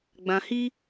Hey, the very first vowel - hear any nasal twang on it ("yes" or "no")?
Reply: yes